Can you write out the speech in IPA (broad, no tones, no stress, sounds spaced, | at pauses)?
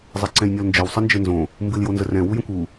zˤ ɛ ǀ ɛ̃ j nʲ ɔ l n d͡ʒ ɘ w sˤ ɨ n d͡ʒ ɘ n z õ | m b ɨ l j o n z ə r ɛ̃ w u j ə̃ kʷ u